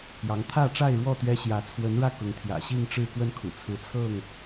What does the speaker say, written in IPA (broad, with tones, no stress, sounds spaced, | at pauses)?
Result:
j ɑ˨˦ ŋ t̪ʰ ä˥˨ ʈ͡ʂ a˥˨ ɪ̯ ɻ w ɔ˥˨ t̪ ɥ ɛ˦ ɕ j ä˨˦ t͡sʰ w ə˨˦ n ɻ ä˥˨ k ʊ˨˦ ŋ t̪ʰ j ä̰˨˩ ɕ i˥˨ ŋ ʈ͡ʂ ɻ̩˥˨ k w ə˥˨ n kʰ ṵ˨˩ t͡sʰ ɹ̩˨˦ t͡sʰ ɤ˥˨ ŋ